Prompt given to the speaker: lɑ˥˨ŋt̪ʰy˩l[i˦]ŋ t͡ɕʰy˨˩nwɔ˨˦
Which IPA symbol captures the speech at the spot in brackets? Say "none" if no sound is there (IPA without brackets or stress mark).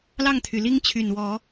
i˦